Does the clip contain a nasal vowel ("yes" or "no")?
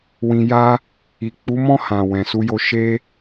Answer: yes